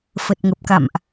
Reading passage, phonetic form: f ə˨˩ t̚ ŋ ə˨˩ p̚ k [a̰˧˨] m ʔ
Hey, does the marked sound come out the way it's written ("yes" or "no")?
yes